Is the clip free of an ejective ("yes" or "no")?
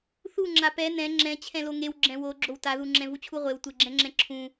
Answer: yes